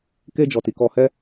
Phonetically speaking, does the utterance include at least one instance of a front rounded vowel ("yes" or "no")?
no